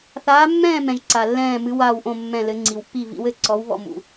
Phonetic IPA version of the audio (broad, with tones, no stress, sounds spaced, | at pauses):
θ aː˧˥ mː ɛ̃ː˥˧ m ɛ̃˨ ʒ ǀ a˨ lː ɛ̃ː˥˧ m ɨ˧˥ w aː˥˧ w ʔ õ˥˧ mː ɛ̃˥˧ l ɘ˧˥ ŋ͡ǀ i˨ w pː i˥˧ v ḭ˧˥ w ɘ˧˥ ǀ ɔ˧˥ w β ɔ̰˥˧ m ṵ˨